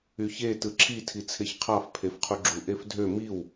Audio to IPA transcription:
y ç e t ɯ ǁʰ i tʰ i t͡sʰ e ç qʰ ɑ f pʰ e f qʰ u ɡ͡ǁ u ʔ e f dʱ ø m i w

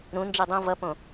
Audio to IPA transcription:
ɾ ũ n d͡ʒ e dˤ õ v ʌ p õ

